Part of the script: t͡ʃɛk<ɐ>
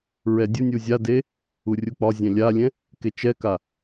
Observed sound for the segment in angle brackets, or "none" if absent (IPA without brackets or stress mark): a